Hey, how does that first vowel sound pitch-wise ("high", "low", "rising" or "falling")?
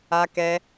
high